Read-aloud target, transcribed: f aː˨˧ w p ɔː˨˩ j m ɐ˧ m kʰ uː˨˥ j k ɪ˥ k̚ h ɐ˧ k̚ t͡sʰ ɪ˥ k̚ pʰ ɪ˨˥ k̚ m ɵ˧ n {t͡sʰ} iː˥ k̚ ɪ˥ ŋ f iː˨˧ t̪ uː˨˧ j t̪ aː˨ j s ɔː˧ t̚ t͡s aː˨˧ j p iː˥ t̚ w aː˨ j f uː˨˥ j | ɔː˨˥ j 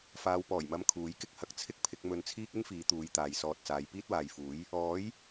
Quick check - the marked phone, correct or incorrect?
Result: correct